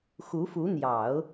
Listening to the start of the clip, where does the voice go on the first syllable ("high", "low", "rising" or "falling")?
rising